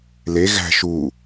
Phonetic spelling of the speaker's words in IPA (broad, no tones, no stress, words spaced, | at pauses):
le ɣæ̤ ʃu